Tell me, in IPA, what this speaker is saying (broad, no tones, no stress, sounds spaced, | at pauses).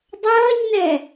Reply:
dˤ ʌː ɲ n ɛ